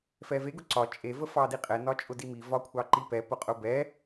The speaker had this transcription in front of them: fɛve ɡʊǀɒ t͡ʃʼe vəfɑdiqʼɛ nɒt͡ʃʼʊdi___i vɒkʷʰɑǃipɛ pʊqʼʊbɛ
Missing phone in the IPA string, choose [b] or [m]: m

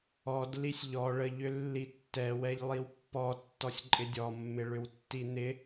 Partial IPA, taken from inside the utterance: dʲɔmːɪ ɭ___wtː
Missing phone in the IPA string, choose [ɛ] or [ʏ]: ʏ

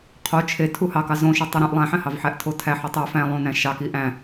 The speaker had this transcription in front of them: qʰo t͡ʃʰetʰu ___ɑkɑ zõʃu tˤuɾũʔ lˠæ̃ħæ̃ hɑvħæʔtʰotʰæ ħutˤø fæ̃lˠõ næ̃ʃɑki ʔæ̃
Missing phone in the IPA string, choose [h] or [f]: h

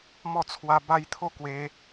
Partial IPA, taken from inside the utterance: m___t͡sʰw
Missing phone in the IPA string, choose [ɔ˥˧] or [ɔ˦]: ɔ˥˧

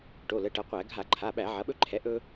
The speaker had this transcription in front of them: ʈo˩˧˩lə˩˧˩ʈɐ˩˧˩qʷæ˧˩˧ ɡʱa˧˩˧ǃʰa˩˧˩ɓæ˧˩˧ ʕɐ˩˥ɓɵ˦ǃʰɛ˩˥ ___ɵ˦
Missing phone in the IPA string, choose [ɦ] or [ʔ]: ʔ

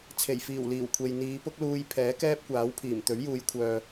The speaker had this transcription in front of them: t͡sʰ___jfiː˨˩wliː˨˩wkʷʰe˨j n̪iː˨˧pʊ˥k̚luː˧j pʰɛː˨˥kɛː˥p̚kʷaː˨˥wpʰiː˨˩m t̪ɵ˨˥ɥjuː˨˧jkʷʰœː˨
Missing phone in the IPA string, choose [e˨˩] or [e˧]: e˨˩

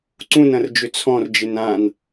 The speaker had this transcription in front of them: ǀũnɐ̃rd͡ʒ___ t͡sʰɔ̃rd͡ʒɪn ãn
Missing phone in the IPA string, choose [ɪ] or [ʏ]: ʏ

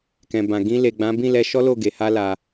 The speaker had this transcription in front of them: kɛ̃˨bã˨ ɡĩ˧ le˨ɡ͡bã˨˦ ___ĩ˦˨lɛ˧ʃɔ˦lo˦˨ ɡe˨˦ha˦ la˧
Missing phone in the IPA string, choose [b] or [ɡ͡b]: b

